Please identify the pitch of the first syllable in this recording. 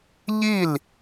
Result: falling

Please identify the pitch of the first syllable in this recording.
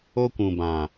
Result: high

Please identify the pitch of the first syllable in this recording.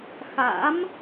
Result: rising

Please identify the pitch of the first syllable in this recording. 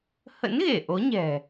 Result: rising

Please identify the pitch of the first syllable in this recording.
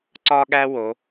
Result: high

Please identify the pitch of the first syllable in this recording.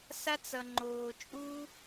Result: high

